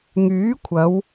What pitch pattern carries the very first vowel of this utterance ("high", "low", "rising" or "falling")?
rising